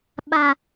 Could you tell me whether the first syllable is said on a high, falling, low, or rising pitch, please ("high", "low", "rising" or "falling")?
low